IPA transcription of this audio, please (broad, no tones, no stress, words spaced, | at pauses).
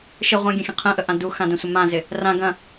ʃɪ ʁʷãɡʲə̃xʲə̃ qʰə̃ʔəʔã duxãdɐ̃sʷɪ mãzɪ | rã ɡɐ̃